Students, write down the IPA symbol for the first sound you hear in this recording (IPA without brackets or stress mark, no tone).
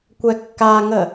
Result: kʷ